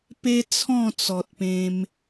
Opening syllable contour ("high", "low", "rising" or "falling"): high